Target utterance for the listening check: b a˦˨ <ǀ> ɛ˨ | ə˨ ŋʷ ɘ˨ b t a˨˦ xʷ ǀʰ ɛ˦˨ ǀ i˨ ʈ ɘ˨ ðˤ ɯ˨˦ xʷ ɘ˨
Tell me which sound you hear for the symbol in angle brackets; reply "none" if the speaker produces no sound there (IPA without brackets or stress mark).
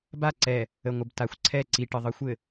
ǀ